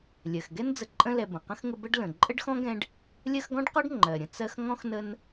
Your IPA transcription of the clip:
lʲɜ˩xɡɛ˥nd͡zə˨ǃʼə̃˦ lɛ˨ bə̃˩qə̃˥xŋə˦ bə˦ɖ lə̃˩ǃʼə˥ɖxɔ̃˥ɡɛ̃˦ɖ | lʲɜ˦xɡɔ̃˥ɖqɔ˥ɖ ŋ͡ǃɜ˩ɾʲə̃˩ t͡sɜ˦xŋɔ̃˥x nə˦n

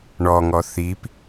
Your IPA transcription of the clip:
ɳɔŋɔ θip

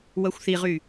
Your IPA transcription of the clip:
wɐxʷθiʁy

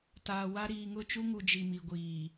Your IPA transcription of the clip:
taː˨wa˦ ɾiː˨ŋʊ˦˨t͡ʃu˦ŋu˨ d͡ʒi˨mi˨ɡʷiː˨

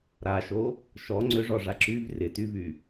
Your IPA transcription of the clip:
ɾaʃo | ʃɔ ŋ͡ǀʏʐɔʐa ǁyv rɪtyvy

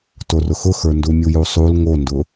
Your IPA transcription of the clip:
torʊxʊxə˞ ndumʲujusˤul ŋondʊ

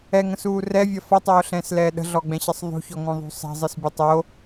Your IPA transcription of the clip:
ɛŋə̃suː rɛvʲɐ fʌtˤoːɬɛ̃ːslɛː ɗə̤ɮɔɡ͡bɛ̃ɕɐsˤ ðˤṳçɔŋõðˤṳ sˤɛ̤zˤɯsbʲɐ tˤo

